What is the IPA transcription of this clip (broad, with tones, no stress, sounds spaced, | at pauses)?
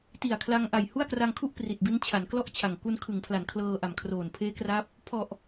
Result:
t i˨˩ a̯ kʰ l a˧ ŋ ʔ a˨˩ j h u˥˩ a̯ k r a˧ ŋ kʰ u˥˩ ʔ p r i˨˩ t̚ b i˦˥ n t͡ɕʰ a˩˦ n k l ɔ˥˩ ʔ t͡ɕʰ a˨˩ ŋ k u˧ n kʰ ɯ˩˦ ŋ pʰ l a˩˦ n kʰ l ɤː˧ ʔ a˨˩ m kʰ r oː˨˩ n pʰ eː˦˥ k r a˦˥ p̚ | pʰ ɔ˨˩ ʔ